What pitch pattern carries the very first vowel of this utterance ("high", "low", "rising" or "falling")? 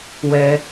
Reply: high